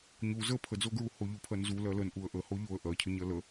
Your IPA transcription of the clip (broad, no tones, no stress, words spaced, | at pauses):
ɲu zə pʰəd͡zoɡɹu hoʎupʰɜnzu lɜlən ʔuə̯ʔəho ʎoə̯ ʔɜcʰəɲɜ lə